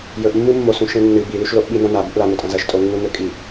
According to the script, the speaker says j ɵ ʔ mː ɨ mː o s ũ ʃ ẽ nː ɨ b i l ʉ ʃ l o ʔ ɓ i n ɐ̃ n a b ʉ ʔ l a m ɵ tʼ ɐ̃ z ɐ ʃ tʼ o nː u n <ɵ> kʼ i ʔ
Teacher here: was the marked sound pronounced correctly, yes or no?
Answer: yes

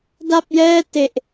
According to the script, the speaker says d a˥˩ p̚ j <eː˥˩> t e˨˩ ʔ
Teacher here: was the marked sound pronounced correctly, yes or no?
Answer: no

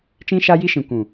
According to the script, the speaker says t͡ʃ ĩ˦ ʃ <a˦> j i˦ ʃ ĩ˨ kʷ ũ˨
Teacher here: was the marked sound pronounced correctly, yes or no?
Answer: yes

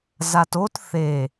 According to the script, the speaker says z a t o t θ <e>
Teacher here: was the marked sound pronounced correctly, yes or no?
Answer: yes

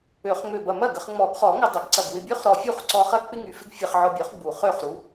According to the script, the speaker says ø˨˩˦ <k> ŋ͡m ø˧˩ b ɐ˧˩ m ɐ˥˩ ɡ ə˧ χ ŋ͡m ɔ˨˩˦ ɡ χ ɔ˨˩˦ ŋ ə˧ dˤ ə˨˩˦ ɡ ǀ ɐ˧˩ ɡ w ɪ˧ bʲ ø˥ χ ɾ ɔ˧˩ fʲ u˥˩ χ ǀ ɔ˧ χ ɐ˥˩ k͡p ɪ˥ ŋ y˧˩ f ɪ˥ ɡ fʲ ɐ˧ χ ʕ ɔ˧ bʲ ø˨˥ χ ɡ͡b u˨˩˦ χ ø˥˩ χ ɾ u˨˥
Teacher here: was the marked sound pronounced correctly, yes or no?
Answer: no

